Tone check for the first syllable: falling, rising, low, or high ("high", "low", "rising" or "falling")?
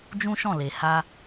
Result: high